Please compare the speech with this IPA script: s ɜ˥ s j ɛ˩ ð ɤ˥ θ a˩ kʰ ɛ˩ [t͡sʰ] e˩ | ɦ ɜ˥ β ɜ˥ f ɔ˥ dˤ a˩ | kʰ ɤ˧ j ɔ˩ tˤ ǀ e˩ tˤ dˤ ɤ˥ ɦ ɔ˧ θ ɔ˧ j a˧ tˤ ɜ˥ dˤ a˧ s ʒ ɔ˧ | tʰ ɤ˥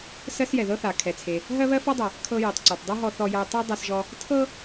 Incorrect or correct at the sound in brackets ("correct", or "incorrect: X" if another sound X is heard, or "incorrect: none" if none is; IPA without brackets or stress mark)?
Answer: correct